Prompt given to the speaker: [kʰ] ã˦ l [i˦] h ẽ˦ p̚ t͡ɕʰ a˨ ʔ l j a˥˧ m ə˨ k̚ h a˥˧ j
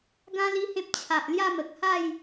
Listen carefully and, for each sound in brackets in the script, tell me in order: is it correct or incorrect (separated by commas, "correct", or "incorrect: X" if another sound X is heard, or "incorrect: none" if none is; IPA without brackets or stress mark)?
incorrect: ɡ, correct